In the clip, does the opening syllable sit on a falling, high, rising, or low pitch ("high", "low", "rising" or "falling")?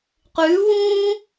rising